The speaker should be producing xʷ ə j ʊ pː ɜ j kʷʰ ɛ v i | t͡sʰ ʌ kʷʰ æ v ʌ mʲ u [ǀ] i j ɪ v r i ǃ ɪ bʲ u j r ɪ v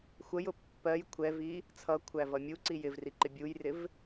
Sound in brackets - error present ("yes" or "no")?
no